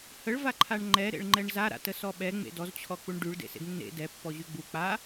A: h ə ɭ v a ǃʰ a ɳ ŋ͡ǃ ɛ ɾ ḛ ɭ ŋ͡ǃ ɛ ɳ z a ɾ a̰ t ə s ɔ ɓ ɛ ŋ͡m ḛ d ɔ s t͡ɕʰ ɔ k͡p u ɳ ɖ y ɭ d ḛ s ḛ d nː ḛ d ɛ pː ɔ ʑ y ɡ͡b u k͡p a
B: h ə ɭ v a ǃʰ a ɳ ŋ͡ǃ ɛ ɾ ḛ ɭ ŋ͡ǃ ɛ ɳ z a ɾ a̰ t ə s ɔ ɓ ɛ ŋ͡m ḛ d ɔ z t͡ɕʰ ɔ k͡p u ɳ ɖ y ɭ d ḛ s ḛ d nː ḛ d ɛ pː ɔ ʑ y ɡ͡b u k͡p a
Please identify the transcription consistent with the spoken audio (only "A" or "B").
B